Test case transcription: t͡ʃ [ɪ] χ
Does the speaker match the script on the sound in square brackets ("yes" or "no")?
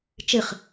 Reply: yes